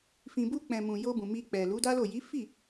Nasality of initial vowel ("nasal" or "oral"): nasal